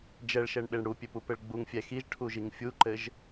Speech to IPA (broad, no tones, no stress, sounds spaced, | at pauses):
d͡ʒ ɛ ɭ ʃ ɛ ɳ ɓ e ɳ ɽ u pʲ ø p u p ɘ ɭ ɡ͡b u ŋ fʲ ɛ x i ʒ ʈʰ u ʒ i ŋ fʲ u ǃ ɘ ʒ